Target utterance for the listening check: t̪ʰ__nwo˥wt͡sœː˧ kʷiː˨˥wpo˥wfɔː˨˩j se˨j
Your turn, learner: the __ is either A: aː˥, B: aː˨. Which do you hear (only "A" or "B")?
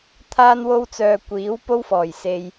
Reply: A